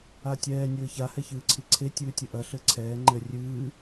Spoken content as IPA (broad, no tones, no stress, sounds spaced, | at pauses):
a tʲ ɛː nʲ ɘː ç a h ɛ ç ɨː ǀʰ i ǀʰ e tʲ ɨː tʲ ɨ ʔ ɐ ɬ ɘ ǀʰ ɛː ŋ͡ǃ ɘ rʲ ɨː